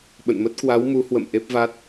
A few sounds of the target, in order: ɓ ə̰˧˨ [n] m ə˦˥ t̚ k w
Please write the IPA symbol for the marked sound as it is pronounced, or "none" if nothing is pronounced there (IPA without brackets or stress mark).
n